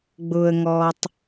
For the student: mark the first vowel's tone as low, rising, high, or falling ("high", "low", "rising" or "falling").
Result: low